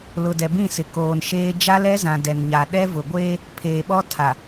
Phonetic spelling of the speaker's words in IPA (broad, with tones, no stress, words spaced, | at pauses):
lʊ˨dɛ˨bĩ˦˨sɪ˨ koː˨nʃeː˦ d͡ʒa˦lɛ˦zã˨ dɛ˨nɲa˨ ɗɛ˦vʊ˨ ɡʷeː˦ | pʰeː˨ɓɔ˦ tʰa˨